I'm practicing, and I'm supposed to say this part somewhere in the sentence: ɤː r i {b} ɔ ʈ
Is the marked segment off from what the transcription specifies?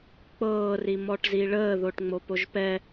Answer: yes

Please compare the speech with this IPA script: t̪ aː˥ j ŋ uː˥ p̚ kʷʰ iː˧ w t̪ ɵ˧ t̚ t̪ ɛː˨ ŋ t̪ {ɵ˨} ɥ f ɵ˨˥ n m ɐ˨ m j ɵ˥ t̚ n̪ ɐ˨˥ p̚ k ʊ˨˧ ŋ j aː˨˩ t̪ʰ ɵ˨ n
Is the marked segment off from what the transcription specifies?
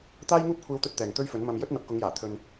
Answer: yes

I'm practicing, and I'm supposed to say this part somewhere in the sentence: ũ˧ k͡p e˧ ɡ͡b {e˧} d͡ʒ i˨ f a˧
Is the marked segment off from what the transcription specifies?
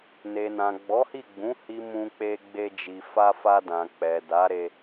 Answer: no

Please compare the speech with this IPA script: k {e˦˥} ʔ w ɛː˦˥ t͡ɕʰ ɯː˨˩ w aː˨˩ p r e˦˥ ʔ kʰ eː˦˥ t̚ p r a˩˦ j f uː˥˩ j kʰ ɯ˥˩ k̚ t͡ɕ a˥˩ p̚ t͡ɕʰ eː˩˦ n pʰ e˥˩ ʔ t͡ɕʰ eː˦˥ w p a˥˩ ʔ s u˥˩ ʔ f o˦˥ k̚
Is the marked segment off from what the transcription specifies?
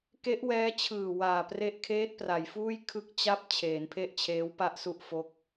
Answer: no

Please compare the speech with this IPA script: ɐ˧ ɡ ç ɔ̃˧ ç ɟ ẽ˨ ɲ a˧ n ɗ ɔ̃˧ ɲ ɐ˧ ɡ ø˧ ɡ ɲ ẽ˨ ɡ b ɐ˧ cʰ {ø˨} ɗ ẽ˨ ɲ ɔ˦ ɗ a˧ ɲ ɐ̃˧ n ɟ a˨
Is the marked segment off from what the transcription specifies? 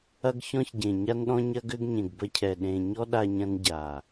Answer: yes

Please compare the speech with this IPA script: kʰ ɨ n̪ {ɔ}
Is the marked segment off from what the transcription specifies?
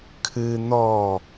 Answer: no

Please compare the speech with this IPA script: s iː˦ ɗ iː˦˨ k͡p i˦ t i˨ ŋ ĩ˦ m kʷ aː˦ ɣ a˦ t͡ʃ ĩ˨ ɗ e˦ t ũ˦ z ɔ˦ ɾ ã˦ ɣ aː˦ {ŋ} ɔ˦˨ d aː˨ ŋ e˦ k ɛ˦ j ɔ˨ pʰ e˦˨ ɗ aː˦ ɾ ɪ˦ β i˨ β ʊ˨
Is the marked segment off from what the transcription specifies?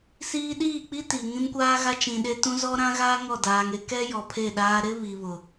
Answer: no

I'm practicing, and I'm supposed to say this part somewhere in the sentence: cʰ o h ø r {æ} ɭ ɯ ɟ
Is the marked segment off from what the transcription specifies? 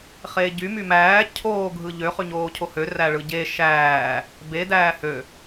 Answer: no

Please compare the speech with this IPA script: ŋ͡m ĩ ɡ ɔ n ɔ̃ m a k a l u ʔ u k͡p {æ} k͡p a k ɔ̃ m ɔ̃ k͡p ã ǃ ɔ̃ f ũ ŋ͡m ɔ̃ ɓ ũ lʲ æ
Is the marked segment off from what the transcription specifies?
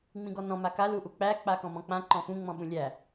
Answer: no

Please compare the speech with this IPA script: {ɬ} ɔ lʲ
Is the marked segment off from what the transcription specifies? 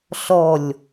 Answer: no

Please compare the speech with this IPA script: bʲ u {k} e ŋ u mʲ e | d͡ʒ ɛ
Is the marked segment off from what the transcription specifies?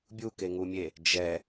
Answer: no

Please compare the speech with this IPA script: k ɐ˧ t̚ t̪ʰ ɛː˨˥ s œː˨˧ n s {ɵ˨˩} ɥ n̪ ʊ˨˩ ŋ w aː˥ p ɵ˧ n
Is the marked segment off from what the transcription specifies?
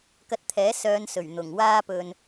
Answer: no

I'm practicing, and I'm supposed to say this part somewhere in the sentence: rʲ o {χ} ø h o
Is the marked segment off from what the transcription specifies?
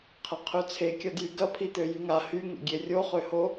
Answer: no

